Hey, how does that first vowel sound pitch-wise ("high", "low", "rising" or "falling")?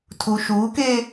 low